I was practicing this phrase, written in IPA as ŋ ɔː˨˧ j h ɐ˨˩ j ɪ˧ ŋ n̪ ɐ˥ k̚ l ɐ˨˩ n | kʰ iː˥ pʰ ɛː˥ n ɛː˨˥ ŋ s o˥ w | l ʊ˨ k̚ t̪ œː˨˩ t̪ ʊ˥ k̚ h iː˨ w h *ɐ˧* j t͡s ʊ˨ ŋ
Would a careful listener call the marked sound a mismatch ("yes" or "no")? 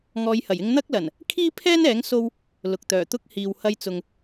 no